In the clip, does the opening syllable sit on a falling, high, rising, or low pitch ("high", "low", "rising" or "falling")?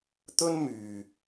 high